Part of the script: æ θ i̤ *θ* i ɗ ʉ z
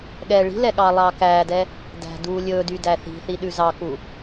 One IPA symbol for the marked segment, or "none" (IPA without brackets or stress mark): θ